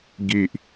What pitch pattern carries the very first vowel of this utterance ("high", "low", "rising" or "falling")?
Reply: low